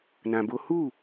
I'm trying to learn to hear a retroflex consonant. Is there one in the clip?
no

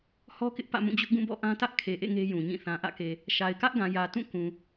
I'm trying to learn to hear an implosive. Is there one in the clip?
no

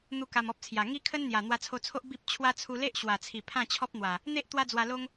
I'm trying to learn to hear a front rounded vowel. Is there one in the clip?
no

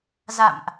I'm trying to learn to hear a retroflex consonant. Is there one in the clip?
no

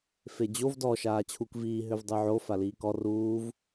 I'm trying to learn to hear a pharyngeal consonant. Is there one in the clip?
yes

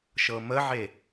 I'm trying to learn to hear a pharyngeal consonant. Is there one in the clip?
yes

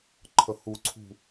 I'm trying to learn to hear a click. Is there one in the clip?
yes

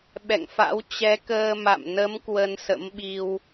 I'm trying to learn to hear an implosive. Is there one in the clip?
yes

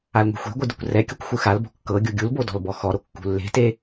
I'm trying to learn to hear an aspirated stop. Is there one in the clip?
no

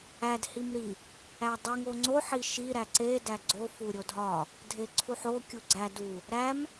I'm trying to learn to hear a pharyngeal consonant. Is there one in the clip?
yes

